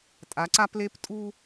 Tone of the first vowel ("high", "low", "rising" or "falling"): rising